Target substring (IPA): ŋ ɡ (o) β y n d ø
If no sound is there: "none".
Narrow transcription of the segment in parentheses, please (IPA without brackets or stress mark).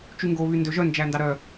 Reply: o